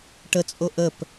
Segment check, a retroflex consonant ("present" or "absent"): present